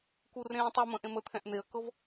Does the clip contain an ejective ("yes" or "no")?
no